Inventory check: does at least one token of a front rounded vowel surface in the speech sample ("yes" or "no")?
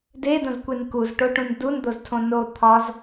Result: no